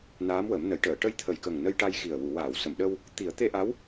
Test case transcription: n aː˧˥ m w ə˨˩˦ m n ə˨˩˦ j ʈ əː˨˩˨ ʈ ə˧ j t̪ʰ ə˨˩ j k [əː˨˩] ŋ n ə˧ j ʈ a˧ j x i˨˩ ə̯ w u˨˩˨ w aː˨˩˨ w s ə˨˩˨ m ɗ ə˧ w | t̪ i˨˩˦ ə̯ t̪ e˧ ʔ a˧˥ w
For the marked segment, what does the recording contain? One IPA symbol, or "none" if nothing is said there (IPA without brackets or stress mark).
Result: ə˨˩